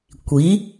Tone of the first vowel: rising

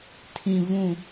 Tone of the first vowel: low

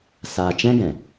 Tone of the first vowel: low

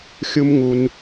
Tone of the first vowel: high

